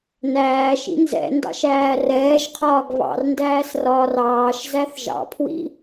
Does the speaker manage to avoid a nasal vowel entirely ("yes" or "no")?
yes